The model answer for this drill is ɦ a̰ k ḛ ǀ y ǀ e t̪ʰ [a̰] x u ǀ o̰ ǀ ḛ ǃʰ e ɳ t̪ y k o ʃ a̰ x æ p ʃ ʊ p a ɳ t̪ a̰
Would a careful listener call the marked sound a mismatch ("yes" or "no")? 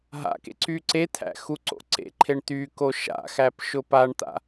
yes